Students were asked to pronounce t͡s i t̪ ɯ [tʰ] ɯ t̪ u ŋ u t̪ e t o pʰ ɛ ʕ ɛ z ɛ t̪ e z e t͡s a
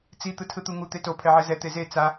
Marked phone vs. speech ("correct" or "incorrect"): correct